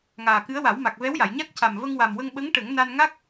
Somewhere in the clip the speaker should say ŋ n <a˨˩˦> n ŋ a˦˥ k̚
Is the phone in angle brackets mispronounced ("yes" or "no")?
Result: yes